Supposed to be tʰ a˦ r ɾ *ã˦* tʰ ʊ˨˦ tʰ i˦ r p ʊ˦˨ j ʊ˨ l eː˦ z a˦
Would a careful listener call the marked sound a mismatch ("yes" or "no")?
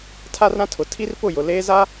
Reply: no